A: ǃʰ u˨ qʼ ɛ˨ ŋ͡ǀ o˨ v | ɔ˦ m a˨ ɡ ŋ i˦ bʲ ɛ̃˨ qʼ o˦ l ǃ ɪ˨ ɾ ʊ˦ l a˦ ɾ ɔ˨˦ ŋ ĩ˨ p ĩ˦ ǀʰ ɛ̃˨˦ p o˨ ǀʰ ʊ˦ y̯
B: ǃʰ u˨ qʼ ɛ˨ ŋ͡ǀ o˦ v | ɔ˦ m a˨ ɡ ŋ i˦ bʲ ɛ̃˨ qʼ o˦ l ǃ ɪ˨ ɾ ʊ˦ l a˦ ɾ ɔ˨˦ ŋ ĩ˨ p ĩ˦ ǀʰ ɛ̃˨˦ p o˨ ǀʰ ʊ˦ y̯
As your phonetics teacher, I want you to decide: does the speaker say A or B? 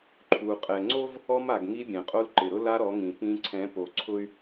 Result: B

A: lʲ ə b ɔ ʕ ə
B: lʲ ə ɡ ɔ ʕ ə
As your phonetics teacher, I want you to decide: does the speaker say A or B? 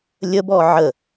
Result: A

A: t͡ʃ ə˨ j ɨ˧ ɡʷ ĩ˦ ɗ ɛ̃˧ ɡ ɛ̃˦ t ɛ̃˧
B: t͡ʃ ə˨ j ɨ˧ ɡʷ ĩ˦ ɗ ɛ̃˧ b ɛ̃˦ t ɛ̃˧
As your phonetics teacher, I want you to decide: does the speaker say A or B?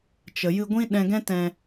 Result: A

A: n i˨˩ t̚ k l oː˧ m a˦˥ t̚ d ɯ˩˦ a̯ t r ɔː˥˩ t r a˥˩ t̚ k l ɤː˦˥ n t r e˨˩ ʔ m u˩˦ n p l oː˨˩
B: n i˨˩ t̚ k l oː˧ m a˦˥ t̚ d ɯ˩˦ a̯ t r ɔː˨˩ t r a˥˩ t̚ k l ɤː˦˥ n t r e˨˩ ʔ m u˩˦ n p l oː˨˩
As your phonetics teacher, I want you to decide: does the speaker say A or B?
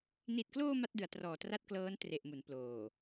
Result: B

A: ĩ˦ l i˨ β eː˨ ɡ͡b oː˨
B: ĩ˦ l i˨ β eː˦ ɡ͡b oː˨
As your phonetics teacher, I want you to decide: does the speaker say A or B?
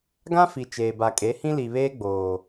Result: B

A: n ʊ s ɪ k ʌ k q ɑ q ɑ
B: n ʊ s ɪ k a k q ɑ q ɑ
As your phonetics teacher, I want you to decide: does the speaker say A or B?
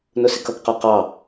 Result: A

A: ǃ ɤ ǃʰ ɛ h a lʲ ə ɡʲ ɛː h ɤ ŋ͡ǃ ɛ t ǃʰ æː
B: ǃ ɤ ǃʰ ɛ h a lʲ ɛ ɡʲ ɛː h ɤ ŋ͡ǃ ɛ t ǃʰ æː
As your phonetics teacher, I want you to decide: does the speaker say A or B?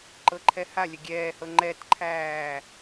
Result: A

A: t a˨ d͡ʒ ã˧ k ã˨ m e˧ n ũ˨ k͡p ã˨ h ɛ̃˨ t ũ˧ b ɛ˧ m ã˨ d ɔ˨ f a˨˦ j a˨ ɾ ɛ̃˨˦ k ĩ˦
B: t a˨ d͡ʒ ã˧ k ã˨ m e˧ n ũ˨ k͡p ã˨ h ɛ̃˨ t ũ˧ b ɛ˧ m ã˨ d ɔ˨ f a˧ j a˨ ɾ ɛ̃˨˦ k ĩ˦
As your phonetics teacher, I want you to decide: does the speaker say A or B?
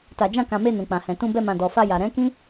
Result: B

